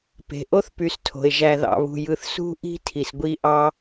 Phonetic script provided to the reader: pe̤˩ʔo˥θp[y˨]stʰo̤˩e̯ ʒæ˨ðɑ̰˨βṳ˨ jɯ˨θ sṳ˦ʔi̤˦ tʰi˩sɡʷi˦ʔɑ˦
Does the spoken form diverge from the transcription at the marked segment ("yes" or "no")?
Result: no